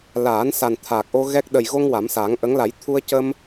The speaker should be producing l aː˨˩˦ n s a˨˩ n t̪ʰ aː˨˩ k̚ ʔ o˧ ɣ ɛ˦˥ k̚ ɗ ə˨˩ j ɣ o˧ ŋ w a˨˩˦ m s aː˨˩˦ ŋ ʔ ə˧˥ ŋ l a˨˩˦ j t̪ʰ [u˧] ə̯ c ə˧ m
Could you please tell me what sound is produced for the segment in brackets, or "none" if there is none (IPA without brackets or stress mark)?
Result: u˧